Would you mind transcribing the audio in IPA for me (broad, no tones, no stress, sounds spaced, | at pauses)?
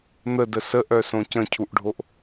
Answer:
n̪ ə d ə s ə ʔ œ s õ c ə̃ cʰ u ʔ ɖʱ o ʔ